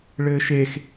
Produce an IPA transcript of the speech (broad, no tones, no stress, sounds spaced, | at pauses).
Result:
ɭ ɘː ʃ e x